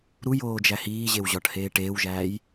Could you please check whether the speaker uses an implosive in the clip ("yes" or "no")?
no